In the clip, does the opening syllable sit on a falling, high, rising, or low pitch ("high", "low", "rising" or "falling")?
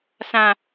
low